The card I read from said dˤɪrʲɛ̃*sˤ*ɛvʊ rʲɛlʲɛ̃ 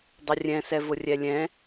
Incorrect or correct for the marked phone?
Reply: incorrect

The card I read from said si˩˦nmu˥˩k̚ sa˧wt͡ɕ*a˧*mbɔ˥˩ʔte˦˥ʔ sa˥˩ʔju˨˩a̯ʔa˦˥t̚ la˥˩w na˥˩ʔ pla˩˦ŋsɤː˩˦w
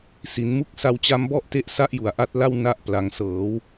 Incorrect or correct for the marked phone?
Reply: incorrect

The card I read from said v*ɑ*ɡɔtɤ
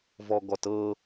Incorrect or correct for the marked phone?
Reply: incorrect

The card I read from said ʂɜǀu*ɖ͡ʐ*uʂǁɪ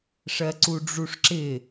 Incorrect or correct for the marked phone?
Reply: correct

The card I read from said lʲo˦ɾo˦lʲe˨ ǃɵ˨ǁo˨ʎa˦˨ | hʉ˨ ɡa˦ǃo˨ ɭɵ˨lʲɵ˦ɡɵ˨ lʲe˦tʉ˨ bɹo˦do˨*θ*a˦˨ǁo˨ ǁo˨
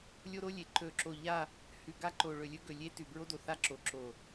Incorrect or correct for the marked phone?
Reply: correct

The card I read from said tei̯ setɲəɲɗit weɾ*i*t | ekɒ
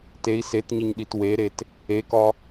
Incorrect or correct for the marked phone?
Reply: incorrect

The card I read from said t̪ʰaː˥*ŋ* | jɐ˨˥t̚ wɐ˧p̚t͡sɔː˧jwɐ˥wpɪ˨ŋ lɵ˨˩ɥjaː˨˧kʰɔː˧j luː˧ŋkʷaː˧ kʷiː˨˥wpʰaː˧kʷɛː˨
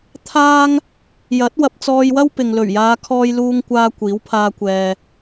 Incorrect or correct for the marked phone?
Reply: correct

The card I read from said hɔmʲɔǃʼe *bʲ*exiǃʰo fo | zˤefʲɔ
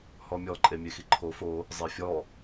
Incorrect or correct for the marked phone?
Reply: incorrect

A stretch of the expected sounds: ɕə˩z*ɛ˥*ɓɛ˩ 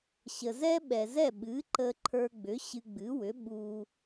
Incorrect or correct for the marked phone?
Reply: correct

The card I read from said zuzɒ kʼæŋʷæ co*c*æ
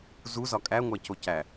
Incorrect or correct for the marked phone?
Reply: correct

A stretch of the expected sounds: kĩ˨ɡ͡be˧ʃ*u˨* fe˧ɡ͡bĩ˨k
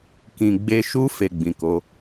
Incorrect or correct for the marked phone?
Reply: incorrect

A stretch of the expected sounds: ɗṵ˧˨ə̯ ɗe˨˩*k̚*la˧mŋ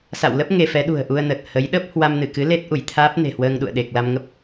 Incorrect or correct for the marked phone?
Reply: correct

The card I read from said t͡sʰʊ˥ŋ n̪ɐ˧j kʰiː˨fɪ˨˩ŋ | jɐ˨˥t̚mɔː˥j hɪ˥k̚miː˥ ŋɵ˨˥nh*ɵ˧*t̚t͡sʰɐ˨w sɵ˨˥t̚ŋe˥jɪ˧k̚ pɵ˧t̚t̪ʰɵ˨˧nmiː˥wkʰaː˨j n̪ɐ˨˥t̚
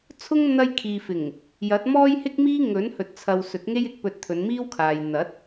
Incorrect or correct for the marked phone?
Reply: incorrect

